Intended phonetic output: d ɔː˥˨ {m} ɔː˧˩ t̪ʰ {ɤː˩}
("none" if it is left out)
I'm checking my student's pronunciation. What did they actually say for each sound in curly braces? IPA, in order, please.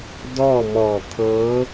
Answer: m, ɤː˧˥

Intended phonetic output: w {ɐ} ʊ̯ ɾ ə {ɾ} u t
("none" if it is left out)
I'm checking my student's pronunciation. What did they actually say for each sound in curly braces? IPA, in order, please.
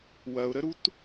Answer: ɐ, ɾ

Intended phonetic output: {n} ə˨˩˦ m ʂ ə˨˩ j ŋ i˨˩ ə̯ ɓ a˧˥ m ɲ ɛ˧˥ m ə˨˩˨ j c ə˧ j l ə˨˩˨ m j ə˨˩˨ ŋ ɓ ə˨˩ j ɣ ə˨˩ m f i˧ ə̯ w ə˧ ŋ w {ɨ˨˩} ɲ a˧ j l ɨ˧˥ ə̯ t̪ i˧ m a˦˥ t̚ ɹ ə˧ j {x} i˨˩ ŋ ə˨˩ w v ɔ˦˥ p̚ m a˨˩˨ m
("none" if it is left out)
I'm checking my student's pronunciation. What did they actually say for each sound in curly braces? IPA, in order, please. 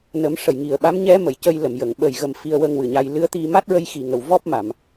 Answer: n, ɨ˨˩, x

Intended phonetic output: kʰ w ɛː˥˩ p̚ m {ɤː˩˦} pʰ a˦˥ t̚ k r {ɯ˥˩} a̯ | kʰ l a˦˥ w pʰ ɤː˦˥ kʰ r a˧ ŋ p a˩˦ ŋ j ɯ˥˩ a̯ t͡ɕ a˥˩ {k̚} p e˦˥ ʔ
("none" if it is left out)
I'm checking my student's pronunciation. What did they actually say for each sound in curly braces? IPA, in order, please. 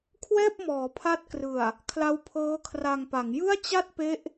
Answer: ɔː˩˦, ɯ˨˩, t̚

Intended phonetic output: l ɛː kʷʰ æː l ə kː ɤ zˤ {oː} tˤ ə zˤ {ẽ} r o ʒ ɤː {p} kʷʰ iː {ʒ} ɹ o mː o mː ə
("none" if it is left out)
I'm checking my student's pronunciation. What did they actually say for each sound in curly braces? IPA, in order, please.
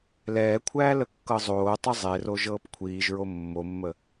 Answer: oː, e, p, ʒ

